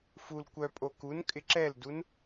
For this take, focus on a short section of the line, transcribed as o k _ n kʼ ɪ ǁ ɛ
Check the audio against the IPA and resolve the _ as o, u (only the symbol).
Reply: u